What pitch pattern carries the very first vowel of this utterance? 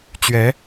rising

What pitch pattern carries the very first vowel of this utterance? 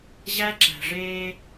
high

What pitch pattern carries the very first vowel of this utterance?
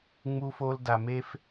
high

